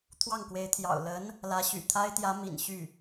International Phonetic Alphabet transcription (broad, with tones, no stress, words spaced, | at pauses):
t̪ʰwɑ˥˩ŋkwe˧˥ɪ̯t̪ʰjɑ̰˨˩ʊ̯ lə˧˥n | lä˧˥ɕy̰˨˩t̪ʰa˥ɪ̯ t̪jä˧˥ mḭ˨˩nɕy˥˩